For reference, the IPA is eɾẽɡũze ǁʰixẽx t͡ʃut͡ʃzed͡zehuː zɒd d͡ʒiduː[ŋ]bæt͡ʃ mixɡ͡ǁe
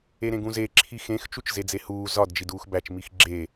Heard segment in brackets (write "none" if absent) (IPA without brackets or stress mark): x